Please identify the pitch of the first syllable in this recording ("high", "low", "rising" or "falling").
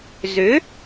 rising